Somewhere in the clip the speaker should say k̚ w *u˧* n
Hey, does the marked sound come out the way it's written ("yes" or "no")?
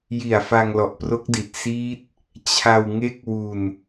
yes